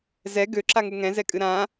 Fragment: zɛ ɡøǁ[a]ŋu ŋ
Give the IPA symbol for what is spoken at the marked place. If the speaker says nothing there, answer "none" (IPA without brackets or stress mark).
a